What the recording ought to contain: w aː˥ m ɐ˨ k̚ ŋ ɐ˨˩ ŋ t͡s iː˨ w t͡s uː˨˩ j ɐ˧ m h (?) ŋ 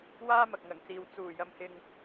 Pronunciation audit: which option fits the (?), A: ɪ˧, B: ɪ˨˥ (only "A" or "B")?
A